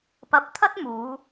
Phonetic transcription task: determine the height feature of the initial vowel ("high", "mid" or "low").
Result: low